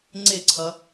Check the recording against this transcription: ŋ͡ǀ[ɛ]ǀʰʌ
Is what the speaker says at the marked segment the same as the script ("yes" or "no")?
no